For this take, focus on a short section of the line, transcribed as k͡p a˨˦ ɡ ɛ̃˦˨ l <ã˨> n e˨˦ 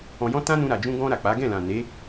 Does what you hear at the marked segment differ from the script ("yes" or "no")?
no